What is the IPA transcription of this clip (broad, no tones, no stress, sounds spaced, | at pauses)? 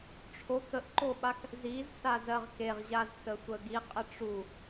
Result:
ʈ͡ʂʰ o k ə ʔ ǃ o ɓ a k | z i z s a z ɜ ʁ k e ʁ ʑ a z t ə sʷ ə ɡ i qʼ ə ʈ͡ʂ u